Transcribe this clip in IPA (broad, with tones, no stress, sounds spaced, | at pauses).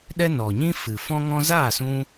ɗ ɛ˦ n ɔ˨ ɲ ĩ˦ f ɨ˨ f ɔ̃˦ ŋ ɔ̃˦ z aː˦˨ s ũ˧